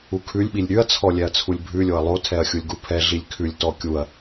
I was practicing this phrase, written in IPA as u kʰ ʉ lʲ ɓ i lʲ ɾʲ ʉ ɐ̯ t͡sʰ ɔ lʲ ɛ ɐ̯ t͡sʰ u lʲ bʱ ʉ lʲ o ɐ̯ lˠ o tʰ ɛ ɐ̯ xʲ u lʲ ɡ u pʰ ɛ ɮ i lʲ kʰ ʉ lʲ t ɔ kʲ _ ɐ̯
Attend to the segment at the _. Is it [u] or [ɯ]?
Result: u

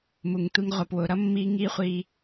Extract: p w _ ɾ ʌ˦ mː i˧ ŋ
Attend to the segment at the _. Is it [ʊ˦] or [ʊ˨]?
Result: ʊ˨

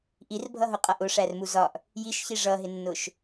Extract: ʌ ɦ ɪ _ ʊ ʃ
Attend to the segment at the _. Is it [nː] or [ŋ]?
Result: nː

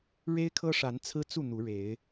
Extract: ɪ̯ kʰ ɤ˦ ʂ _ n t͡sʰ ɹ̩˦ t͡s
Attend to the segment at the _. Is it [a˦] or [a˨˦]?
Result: a˨˦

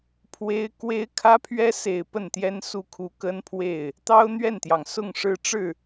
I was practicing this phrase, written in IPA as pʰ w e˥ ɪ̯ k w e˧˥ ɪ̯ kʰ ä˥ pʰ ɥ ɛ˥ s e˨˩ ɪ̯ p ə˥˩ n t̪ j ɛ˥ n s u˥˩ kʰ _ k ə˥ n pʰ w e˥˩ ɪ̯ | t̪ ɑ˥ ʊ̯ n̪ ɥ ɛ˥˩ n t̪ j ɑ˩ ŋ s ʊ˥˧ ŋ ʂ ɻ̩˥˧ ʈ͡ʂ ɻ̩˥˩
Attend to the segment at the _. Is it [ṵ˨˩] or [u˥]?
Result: u˥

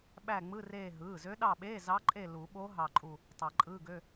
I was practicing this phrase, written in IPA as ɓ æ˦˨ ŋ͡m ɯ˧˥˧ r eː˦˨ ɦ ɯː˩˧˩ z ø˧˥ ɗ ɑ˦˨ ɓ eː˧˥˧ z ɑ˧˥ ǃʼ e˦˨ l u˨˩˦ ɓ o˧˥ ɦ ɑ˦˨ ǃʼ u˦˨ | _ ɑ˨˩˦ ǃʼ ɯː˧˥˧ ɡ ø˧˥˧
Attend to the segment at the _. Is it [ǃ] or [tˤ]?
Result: tˤ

